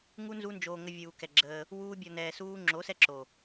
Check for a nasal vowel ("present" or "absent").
absent